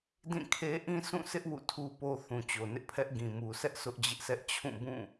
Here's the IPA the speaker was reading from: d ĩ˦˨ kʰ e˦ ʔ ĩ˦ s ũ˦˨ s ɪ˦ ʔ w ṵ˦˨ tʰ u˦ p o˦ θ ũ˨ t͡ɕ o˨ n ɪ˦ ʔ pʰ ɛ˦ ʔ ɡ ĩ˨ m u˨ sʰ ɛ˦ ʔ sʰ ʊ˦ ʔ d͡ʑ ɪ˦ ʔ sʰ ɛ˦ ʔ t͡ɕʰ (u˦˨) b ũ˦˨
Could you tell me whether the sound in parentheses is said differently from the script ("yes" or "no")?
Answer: yes